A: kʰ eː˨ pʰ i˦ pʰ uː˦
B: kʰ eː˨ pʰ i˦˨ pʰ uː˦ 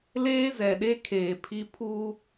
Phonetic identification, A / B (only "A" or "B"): A